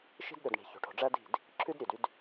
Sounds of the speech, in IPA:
ʃ i̤˦ d ɗ ɵ˨ d ɳ i̤˨ ç o̤˨ ʈʰ o̤˨ ɖ͡ʐ æ˦ d i̤˦˨ d | ǁʰ ʉ˦ d ɾʲ ø˨ d y˦ d

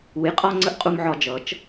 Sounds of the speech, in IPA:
u˨˦ j qʼ ɒ˧ ŋ͡ǀ ə˦ ʔ qʼ u˧ m ʕ ɒ˧ d͡ʒ ʌ˨˦ t͡ʃ

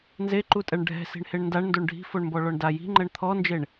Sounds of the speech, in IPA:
n z e ǃ u tʼ ɛ ɳ ɖʱ ɛ̤ s i̤ ɳ h e ɳ n d a ɳ n d o ɳ ɖʱ i̤ f o ɳ m b ɔ ɭ ɔ ɳ d a j i̤ ŋ͡ǃ ɛ ɳ t̪ʰ ɔ n d͡ʒ e ɳ

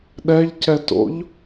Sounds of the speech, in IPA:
ɗ ɛ ʎ c ɛ t o̰ ʎ

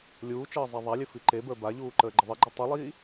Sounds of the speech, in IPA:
lʲ uː t͡ʃ əː zˤ a ðˤ a lʲ ɘ f i ǃ e b ə˞ b a ʎ uː ǃ əː ɡ͡ǃ ə ðˤ i ɡ͡ǃ i tˤ u lˠ iː

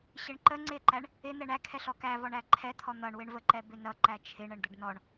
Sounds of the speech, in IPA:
ɕ ɪ ɳ ǃ ə ŋ͡ǀ ɪ ǃ æ ɳ | ɪ n̪ ɛ ɳ æ kʰ ɛ ɬ ɔ k æ v ɔ ɳ æ ǃʰ ɛ t̪ʰ ɔ n̪ ʌ ɳ w ɪ ɳ v ə ǃ ɛ b ɪ n ʌ ǃ æ t͡ʃʰ ɪ ɳ ə ɳ d̪ ə ɖ n ɔ ɳ

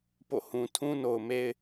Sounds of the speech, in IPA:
p o̰˦˨ h ũ˨ tʰ ũ˦ n o˨ ʊ̯ m e˦ ɪ̯

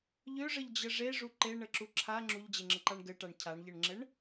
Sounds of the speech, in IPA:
ʎ ø ʐ ə ʎ d͡ʑ ə ʐ e ʐ u ǃ e ɳ ə ǁ u ǁʰ a ŋ͡ǁ u ʎ d͡ʑ e ŋ͡ǁ ə ǃ a ɳ ɡ ɘ ʈ a ɳ cʰ a ɳ ʎ ɘ ɳ ŋ͡ǁ ɘ ɳ

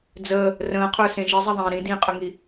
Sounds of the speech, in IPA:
d͡z əː | r ə̃ː qʰ ə˞ s ẽ ʒ i zˤ ɛ ðˤ ẽː ɾ ĩ d ĩː qʼ ə ŋ i

